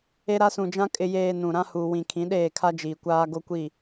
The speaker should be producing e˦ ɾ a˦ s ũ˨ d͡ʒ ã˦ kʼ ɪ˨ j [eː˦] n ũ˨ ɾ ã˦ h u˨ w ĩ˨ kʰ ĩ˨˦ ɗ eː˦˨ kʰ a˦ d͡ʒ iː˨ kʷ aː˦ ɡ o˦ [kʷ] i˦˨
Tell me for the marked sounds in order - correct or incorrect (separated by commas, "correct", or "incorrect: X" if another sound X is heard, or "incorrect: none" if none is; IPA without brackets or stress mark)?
incorrect: eː˨, correct